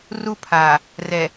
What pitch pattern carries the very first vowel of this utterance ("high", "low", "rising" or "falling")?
high